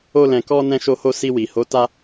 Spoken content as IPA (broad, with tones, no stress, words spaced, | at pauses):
o˦lɛ̃˧kɔ˦ nɛ̃˦ʃo˦ho˦ si˧wi˨ho˨˦ ta˦